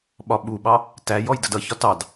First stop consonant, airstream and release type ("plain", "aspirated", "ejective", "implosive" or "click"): implosive